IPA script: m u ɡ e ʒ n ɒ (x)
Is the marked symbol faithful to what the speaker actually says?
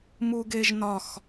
yes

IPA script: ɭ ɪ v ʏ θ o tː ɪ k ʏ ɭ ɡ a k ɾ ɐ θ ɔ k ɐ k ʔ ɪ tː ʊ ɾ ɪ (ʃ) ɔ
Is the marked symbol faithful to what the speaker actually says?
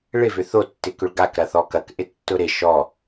yes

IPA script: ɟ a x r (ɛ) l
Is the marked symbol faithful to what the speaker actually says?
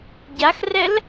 yes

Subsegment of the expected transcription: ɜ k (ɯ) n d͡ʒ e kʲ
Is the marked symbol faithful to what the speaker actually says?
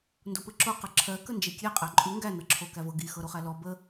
no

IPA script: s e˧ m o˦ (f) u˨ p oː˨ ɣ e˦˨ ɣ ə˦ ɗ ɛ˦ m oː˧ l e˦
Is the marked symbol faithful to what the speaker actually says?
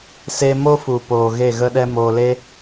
yes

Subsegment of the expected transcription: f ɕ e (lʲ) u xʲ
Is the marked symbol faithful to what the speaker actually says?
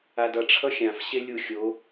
yes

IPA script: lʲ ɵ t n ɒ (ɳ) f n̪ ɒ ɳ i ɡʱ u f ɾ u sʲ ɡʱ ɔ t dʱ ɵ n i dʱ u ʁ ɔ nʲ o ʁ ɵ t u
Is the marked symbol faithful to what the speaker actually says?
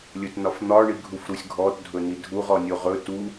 no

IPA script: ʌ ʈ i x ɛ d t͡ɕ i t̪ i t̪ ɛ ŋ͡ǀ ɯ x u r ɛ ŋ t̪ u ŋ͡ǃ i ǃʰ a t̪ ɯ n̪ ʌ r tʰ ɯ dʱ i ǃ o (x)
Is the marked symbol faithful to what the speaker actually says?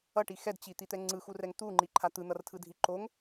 no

